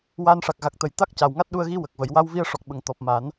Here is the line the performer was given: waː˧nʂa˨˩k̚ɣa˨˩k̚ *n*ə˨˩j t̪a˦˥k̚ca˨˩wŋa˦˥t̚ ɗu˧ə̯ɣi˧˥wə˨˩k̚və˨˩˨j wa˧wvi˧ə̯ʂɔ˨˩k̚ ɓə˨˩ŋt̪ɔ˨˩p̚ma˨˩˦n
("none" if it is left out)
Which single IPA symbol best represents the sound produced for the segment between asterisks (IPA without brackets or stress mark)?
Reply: t̪